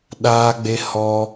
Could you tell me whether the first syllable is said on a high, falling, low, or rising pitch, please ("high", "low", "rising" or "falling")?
high